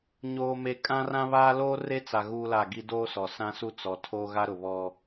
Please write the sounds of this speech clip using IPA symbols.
ɲ oː˨ m e˨ kʼ ã˦ r ã˦ β aː˦ l oː˦ r e˦ t͡s a˨ ɣ uː˦ l a˦˨ ɡ i˦ d oː˦ s ɔ˨ s ã˦ s u˦ t͡s ɔ˨ tʰ oː˦ ɣ a˦ ɾ ʊ˨ β ɔ˦

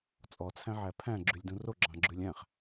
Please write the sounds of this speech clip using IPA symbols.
t͡sʼ ɔ t͡sʰ æ̃ ʕ æ pʰ æ̃ ɡ͡ǁ y lʲ d ũ r o ɡ͡ǁ ɑ̃ ɡ͡ǁ ʉ lʲ æ̃ χ

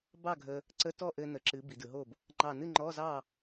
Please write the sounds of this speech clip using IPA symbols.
b ɑ˥˨ ɡʱ ə˧ | ǀ ə˧˥˧ t ɔ˥˨ ʔ ɘ˧ n ə˩˧ ǁ ɨ˩˧ b i˩˧ d ɯ˩˧ ɦ o˥˨ b | ŋ͡ǃ ɑ˧˩ n ɨ˥˨ ŋ͡ǃ ɔ˧˥˧ z ɑ˥˨

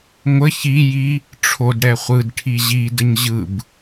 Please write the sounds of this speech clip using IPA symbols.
ŋʷ ə ç i j i | ʈ͡ʂʰ o d ɽ ɛ χʷ ɯ d ʈʰ i ʑ i d ə ɲ ʑ ɯ b

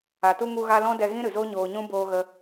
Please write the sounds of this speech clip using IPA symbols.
a˨ t u˧ ŋ u˧ ɣ a˧ l ɔ̃˦ d ɛ˧ ɣ ĩ˦ ɾ ɨ˨ z o˦ ɲ oː˧ ɲ ũ˦ b oː˧ ɣ ə˧

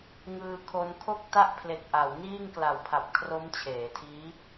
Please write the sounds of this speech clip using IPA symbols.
ŋ ɯː˧ kʰ o˦˥ n kʰ o˥˩ k̚ t a˥˩ ʔ pʰ l e˨˩ k̚ ʔ a˩˦ w n iː˥˩ ŋ k l a˨˩ w pʰ a˨˩ p̚ kʰ r o˦˥ m t͡ɕʰ eː˩˦ tʰ iː˦˥

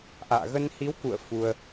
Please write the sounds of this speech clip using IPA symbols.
ʔ a̰ː˧˨ ɣ ə˧ n h i˨˦ w k ṵ˧˨ ə̯ f u˧ ə̯

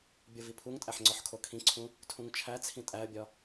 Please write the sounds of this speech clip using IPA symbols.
bʲ o v i pʰ u ŋ tʼ æ ħ ŋ͡ǀ ɒ ħ kʰ o kʰ ĩ ǀʰ ũ | tʰ ũ ŋ t͡ʃʰ æ t͡sʰ ĩ tʼ æ ə̯ bʲ ɒ

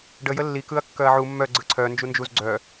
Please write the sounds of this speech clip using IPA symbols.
ɖ ə j ə lː i k ɯ ɐ̯ kː œ ɐ̯ ʕ u mː œ ɡ͡ǀ ɯ ǀʰ œ n d͡ʒ u n d͡ʒ u z ɡ͡ǀ œ

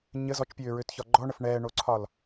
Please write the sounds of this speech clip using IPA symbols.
ɲ ə z ɔ t͡ʃ pʲ øː ɹ ø t ç ɒ ɡ͡ǃ ɔ ɳ ə f ɳ ɛː ɳ o ǀʰ ɒ l

